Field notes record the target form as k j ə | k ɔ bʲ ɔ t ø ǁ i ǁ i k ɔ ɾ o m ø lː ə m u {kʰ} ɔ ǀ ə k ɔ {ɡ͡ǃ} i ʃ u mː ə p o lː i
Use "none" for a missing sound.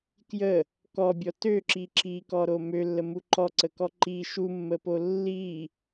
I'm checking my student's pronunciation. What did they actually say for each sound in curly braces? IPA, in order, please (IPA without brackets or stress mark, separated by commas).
ǃ, ǃ